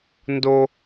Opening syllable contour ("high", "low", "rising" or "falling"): high